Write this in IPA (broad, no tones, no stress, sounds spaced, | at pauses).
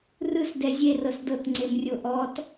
r ɯ s d ɛ zʲ e r ɤ s d ɤ t ŋ͡ǀ e m rʲ o ʔ ɔ t